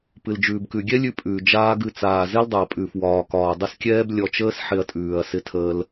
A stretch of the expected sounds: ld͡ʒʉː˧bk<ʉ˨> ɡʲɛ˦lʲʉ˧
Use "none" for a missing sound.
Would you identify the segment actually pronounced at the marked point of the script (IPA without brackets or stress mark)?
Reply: ʉ˧